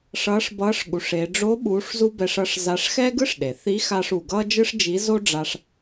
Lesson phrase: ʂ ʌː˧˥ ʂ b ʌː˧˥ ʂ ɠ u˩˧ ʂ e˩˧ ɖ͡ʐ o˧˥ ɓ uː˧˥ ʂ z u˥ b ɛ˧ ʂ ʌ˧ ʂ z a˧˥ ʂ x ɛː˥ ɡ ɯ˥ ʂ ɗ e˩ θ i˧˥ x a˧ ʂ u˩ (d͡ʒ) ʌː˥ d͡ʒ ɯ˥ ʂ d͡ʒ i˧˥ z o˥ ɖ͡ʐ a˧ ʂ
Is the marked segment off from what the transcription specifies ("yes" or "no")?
yes